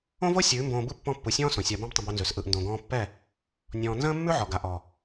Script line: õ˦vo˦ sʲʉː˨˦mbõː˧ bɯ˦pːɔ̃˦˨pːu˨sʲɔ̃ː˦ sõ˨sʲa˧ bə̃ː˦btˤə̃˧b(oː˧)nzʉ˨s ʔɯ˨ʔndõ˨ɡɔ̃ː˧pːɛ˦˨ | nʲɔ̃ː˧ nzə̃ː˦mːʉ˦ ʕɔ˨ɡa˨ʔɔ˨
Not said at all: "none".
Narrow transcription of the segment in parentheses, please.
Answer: o˧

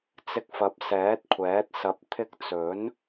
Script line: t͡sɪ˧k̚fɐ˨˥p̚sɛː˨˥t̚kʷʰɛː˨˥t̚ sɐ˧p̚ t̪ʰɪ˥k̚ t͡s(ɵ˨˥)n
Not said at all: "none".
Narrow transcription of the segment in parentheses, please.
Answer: ɵ˨˥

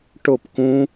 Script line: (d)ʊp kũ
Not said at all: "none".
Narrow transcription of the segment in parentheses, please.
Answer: ʈ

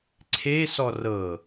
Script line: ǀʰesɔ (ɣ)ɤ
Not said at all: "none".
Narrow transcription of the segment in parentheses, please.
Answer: r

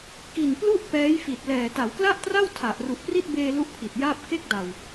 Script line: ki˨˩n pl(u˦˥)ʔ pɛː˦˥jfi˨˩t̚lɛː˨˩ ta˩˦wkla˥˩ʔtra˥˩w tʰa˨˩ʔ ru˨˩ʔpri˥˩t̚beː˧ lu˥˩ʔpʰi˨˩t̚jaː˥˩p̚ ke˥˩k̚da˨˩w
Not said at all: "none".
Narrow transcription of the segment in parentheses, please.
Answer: u˥˩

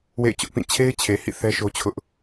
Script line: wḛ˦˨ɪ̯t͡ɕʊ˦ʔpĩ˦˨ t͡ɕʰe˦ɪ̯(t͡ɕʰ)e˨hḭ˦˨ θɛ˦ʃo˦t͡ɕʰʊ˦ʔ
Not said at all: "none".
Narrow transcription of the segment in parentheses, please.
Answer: t͡ɕʰ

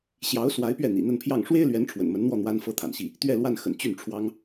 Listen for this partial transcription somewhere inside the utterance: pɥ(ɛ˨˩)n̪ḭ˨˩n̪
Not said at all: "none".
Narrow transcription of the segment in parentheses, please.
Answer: ɛ˥˩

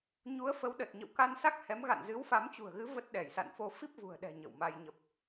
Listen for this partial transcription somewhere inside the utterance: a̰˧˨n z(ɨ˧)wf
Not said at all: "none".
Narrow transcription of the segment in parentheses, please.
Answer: ɨ˨˦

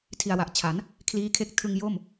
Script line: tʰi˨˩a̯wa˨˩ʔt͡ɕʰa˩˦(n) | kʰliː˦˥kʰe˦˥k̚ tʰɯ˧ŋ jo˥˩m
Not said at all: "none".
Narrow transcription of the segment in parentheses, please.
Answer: n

